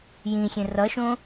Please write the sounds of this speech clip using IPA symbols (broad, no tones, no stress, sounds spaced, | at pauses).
j ĩ xʲ ẽ r ʌ ʃ õ